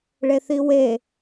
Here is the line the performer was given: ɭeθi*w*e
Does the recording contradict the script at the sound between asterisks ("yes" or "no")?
no